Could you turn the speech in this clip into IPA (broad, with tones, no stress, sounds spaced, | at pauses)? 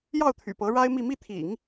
j ɑ˥˩ ʊ̯ t̪ʰ y̰˨˩ p ɤ˧˥ ɻ a˥ ɪ̯ m i˥˧ m i˥˩ t̪ʰ ḭ˨˩˦ ŋ